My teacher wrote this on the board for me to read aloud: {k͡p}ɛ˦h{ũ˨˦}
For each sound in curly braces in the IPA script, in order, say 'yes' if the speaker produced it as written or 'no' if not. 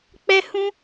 yes, no

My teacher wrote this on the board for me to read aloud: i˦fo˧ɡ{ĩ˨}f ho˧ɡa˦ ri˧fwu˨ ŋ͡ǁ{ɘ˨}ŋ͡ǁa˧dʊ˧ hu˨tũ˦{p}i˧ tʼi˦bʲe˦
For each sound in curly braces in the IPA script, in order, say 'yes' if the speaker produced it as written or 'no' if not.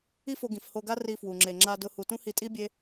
yes, no, no

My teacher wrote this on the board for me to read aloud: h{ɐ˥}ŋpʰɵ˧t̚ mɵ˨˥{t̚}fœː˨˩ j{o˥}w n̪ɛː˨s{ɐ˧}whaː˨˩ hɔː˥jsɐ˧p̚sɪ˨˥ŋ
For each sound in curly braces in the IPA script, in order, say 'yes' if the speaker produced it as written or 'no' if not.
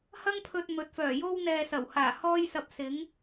yes, yes, yes, no

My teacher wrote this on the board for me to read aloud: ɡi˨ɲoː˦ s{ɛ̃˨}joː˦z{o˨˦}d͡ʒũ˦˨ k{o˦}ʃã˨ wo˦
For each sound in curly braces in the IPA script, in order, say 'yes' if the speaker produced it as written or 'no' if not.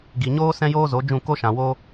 no, yes, yes

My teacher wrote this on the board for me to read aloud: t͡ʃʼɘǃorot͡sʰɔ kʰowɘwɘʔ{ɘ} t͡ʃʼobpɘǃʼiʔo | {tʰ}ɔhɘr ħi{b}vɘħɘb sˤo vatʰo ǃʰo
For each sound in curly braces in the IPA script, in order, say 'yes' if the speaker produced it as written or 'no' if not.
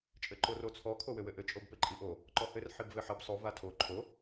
yes, no, yes

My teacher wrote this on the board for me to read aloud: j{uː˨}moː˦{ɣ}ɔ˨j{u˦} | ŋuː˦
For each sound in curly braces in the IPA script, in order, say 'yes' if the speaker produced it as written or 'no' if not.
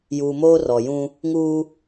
yes, no, no

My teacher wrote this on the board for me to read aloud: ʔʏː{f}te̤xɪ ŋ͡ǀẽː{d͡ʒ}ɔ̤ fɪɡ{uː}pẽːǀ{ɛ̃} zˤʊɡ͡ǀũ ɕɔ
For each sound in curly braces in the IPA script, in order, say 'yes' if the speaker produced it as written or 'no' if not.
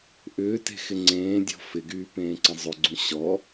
no, no, no, no

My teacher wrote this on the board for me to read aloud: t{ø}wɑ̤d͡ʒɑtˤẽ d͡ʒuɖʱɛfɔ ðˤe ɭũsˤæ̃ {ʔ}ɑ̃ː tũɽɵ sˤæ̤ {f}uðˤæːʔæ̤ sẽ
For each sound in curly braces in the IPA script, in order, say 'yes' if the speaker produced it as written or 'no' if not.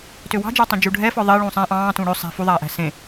yes, yes, yes

